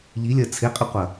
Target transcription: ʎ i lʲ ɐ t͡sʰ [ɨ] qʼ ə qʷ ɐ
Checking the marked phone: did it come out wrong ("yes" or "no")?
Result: yes